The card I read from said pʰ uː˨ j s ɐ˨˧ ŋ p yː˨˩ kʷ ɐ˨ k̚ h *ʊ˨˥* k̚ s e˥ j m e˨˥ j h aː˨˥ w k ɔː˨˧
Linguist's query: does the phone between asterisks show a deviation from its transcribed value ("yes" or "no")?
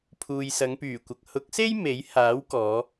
no